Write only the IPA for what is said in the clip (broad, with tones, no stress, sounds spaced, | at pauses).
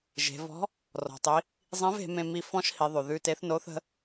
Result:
ʒ e̤˩˧ v ɔ̤˧˥ | r ɔ̤˩ tˤ i˩˧ | zˤ ĩ˧˥ v e̤˩˧ m ẽ˧ m i˧ f ɔ̃˥ ʃ h i˩˧ ðˤ ʉ˩ ð ʉ˧ t e˧˥ θ n o˧˥ θ ə̤˧˥